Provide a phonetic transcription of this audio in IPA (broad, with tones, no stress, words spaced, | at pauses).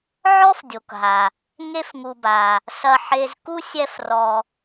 ʕɔ˥fdʲo˩kɦa˩ | ŋe˦fŋu˨ba˩ | sɐ˨ħe˨z ku˥sʲɛ˦frɔ˨